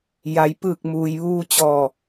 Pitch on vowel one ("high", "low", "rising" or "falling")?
low